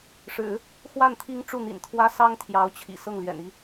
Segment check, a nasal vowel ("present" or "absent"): absent